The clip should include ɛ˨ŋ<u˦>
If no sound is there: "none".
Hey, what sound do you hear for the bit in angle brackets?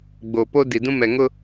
ʊ˦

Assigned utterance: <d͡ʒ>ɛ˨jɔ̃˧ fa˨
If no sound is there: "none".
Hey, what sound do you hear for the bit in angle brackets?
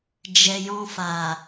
d͡ʒ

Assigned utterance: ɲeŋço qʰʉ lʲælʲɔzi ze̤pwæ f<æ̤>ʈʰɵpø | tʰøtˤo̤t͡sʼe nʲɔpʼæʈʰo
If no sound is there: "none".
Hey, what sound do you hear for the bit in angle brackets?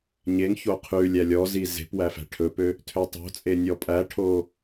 æ̤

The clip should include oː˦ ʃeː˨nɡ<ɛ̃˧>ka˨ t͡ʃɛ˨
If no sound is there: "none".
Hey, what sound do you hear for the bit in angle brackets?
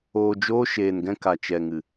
ɛ̃˧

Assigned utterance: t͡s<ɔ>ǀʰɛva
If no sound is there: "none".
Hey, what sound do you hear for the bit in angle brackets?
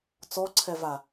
ɔ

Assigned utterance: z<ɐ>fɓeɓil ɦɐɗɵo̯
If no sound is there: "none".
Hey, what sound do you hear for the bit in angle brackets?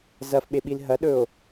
ɐ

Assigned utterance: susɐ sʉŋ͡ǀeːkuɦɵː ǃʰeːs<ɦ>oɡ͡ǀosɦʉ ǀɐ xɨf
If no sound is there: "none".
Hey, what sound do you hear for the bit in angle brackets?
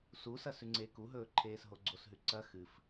ɦ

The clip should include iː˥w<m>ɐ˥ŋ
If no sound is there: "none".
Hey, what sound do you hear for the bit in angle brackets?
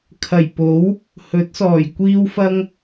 f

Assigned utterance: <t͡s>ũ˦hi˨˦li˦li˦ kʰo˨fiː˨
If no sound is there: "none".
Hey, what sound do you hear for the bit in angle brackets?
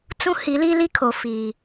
t͡s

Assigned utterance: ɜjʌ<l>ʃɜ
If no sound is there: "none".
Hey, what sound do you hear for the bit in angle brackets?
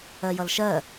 l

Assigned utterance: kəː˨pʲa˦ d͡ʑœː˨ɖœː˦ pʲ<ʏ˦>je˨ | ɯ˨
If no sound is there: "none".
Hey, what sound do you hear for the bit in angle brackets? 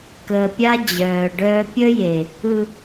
ə˦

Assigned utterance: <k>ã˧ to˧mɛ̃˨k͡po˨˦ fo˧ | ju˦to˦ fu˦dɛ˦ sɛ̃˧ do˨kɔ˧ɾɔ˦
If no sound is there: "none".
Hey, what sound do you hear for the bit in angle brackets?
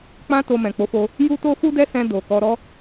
k͡p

